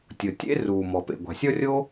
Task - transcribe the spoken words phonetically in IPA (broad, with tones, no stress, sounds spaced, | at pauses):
tʲ ʊ˩ tʲ ḛ˥ r uː˩ m ɔ˩ p ḛ˩ ɡʷ a̤˩ sʲ ɔ˥ rʲ o˥